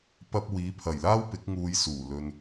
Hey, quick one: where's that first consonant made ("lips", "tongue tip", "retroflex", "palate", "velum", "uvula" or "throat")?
lips